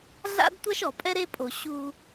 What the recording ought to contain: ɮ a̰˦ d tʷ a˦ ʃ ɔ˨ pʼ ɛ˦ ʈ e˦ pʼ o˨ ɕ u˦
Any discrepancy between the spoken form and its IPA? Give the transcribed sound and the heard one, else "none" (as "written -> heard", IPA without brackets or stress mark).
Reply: ʈ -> ɾ